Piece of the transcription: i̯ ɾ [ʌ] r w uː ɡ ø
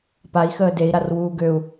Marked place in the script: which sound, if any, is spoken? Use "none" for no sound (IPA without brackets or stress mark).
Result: a